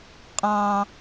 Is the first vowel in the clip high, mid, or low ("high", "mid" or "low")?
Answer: low